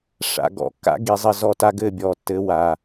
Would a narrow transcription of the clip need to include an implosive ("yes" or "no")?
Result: no